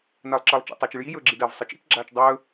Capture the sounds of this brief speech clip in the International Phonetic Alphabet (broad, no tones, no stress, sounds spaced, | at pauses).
n ɐː lˠ ǁ ɐː lˠ t͡ʃ ḭ tˤ a t͡ʃ ɨ ɭ j i j ɵː ɡ͡ǁ i d ɐː v sˤ ɨ t͡ʃ ḭ t͡ʃ ɡ͡ǁ aː t͡ʃ dˤ ɵː